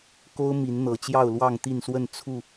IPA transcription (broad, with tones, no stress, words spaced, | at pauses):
ko˦ʊ̯mi˨˦nn̪ɤ˨˩ t͡ɕjɑ˥˨ʊ̯lwɑ˥˨ŋt̪i˥˨nswə˥˨n t͡sʰu˥˨